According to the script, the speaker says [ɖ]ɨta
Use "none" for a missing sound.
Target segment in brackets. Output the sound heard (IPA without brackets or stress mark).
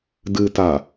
d